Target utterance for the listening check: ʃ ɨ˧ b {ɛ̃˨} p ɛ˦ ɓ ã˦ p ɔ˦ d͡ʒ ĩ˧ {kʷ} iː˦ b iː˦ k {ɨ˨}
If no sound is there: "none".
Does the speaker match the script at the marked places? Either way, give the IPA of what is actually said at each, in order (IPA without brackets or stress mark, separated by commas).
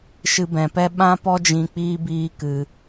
ɛ̃˨, k͡p, ɨ˧